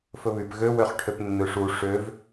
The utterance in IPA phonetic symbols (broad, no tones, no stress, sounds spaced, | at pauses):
f ɵ β y p ɣ ø w ø χ ʈʰ ø p nː ø ʂ u ʂ ø v